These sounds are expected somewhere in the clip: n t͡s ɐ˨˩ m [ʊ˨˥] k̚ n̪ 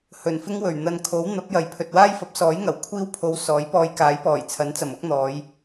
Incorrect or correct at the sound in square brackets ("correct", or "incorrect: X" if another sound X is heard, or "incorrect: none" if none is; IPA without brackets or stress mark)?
correct